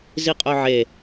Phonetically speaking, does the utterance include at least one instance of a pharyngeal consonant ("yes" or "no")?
yes